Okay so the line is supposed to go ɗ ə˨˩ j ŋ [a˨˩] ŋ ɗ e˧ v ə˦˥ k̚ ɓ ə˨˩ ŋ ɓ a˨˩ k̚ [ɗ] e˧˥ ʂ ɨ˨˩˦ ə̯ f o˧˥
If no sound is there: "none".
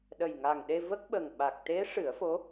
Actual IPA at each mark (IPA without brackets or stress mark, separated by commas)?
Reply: a˨˩, t̪